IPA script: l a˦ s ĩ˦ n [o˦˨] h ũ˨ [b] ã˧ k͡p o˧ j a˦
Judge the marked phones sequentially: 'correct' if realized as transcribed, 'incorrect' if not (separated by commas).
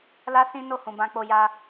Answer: correct, correct